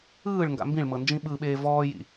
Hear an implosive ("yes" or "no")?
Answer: yes